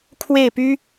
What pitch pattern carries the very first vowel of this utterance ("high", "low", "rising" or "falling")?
falling